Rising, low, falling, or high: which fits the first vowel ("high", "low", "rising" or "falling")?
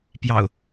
low